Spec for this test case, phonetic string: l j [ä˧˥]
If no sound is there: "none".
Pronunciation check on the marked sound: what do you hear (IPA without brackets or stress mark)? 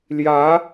ä˧˥